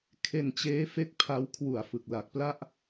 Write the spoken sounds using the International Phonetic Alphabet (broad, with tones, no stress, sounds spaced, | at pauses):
kʰ e˧ n t͡ɕ eː˦˥ f e˦˥ k̚ pʰ a˦˥ w kʰ w u˨˩ a̯ f ɯ˨˩ k̚ l a˨˩ k̚ p l a˥˩ ʔ